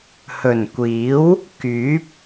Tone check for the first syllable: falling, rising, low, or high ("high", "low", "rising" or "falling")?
low